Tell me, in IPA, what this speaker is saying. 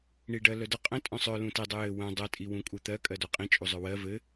ɳ i ɖ ɜ l œ d ə qʼ ə̃ tʼ œ̃ sˤ œ l ũ t i dˤ ɘ j ɘ w œ̃ dˤ ə tʼ i w ũ kʼ u t̪ ɜ kʼ ɜ d œ qʼ ĩ t͡ʃʼ u zˤ œ w ɜ v ɘ

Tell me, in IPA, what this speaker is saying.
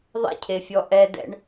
ðˤ ɛ̰ cʰ e fʲ ɔ ʔ ɛ d ɛ̰ ɳ

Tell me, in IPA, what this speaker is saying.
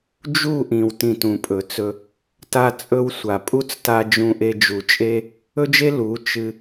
d͡ʒ u˦˨ ʔ ĩ˨ w t ĩ˧ t ũ˨ pʼ ɵ˨ t͡s ɵ˧ | t a˦ t͡sʼ ɵ˦ w sʷ a˨ pʼ u˦ t͡s t a˧ d͡ʒ ũ˧ ʔ e˧ d͡ʒ u˨ t͡ʃʼ e˦ | ɵ˦ d͡ʒ e˦ l u˨˦ t͡ʃ ɨ˧

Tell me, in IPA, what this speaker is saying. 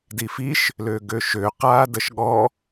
d i f i ʃ | l ø ɡ ø ʃ ø q aː d ə ʃ ɠ ɔ

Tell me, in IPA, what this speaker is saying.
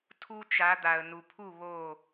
tʰ u˦ t͡ʃ a˨˦ d̪ a˨ ə̯ n u˨ pʰ u˦˨ β o˦˨

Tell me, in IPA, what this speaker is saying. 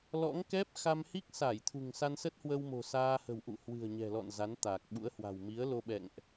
l ɔ̰˧˥ ŋ k ɛ˦˥ p̚ x a˧ m h i˦˥ k̚ s a˧˩ j t̪ʰ ṳ˨˩ ŋ s a˧ n s ə˦˥ t̚ h w ə˧ w m o̤˨˩ s aː˧ h ə̤˨˩ w ʔ ṵ˧˨ h w ɨ̤˨˩ ə̯ ɲ ɛ̤˨˩ l ɔ̰˧˨ n z a˨˦ n t̪ aː˨˩ k̚ ɓ ṵ˧˥ ə̯ h w a̤˨˩ w m i˨˦ ə̯ l o˧ ɓ ɛ̰˧˨ ŋ ʔ

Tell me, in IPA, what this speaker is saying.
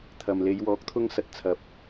t̪ʰ ɐ˨ m l e˨˧ j w ɔː˨˥ k̚ t̪ʰ ʊ˧ ŋ s ɐ˨˥ t̚ t͡sʰ ɐ˨˥ p̚

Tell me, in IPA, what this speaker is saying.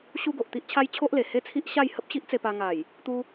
ɕ u˦ ɡ o˨ ʔ t̪ i˦ ʔ t͡ɕʰ a˦ j t͡ɕʰ o˦ ʔ l e˨˩ h e˦ t͡sʰ i˦ ʔ ɕ a˥˧ j h ə˦ p̚ ɕ i˦ ʔ t͡s e˧ p a˧ ŋ a˨˩ j | t̪ u˧

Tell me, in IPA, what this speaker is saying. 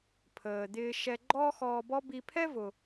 pʰ əː˩ d̪ ɪː˧ ʃ ɛ˧ ɡ͡ǃ ɔː˥ x ɔː˧ b ɔ˥ b i˧ pʰ ɛ˥ v ʊ˩

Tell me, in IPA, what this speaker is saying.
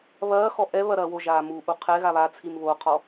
β ɐː x ɔ ʔ ɛ β ɐ ɾ ɐː w o ʒ aː m u ʔ u qʰ ɛ ɣ a β a t͡sʰ i m β o qʰ ɔ

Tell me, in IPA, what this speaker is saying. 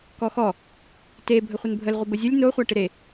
k ɔ x ɔ | t e bʱ ə χʷ ə n bʱ ə l ʁʷ ɪ b ə zʲ ə lʲ n o χʷ a ʈ ɪ ɾ e

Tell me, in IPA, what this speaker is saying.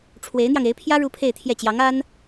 ʈ͡ʂʰ w e˧˥ ɪ̯ n̪ j ɑ˧ ŋ e˧˥ ɪ̯ pʰ j ä˥ ɻ u˥ pʰ e˥˧ ɪ̯ t̪ʰ j ɛ˥˩ t͡ɕ j ɑ˧˥ ŋ a˥ n

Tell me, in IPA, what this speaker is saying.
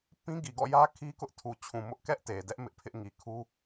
p ĩ˦ ɡ i˨ ɡ ɔ̰˦˨ j ä˦ kʰ i˦ k ʊ˦ ʔ tʰ u˨ t͡ɕʰ ũ˨ m ʊ˦ ʔ k ɛ˦ ʔ t e˨ d ɛ˦ ʔ m ɪ˦ ʔ pʰ ɪ˦ ʔ ŋ i˨ kʰ u˦

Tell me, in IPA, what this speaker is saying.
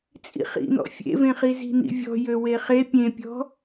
t͡sʼ ḭ χ ḭ n̪ ɔ̰ fʲ ḛ v ẽ χ i z i̤ n̪ ḭ vʲ ɔ̤ j ø w e χ e pʲ ẽ pʲ ɔ̤

